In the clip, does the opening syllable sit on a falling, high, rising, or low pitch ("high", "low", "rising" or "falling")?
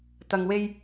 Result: low